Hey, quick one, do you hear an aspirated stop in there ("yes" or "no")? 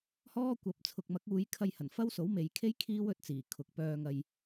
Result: yes